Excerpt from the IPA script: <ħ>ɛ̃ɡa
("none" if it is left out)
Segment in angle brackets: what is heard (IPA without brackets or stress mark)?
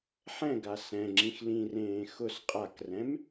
ħ